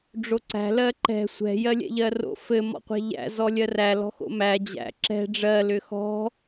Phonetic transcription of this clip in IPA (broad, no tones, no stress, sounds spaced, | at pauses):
ɖ͡ʐ o ǀ æ̤ l ɜ ǃ ɛ̤ sʷ ɛ̤ j ɜ lʲ ɛ̰ ʎ ɜ r o̰ f ɘ m ɔ̰ qʷ æ̤ ʎ æ̰ z ɔ lʲ ɜ r æ l ɔ̤ x o̰ m æ d͡ʑ æ̰ ǁ ɛ̤ ɖ͡ʐ ɜ l ʏ x ɔ̤